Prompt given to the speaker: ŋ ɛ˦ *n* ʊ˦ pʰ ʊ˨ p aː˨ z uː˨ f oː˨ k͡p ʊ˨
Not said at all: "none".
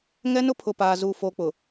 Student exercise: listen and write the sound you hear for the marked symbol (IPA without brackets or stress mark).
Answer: n